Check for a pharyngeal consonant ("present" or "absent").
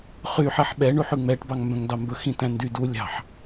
present